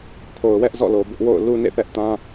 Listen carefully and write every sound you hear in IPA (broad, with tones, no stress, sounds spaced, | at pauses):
kʰ o˨ ʊ̯ w ɛ˦ ʔ z ɔ̰˦˨ l o˨ b ʊ˦ ʔ w o̰˦˨ ʊ̯ l u˦ n ḛ˦˨ θ ɛ˦ ʔ t ã˦